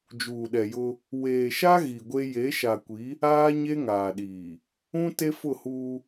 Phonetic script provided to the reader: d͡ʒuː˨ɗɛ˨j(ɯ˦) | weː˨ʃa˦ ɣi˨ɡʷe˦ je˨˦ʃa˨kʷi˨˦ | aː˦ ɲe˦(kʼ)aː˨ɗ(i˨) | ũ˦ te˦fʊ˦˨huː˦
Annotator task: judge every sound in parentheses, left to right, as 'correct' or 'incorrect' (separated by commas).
incorrect, incorrect, incorrect